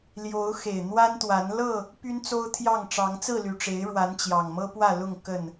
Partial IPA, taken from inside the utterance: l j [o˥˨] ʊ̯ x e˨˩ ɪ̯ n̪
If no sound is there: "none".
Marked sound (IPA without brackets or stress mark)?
o˨˦